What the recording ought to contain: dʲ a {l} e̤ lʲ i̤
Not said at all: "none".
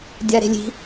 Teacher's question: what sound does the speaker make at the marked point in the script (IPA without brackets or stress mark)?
ɾ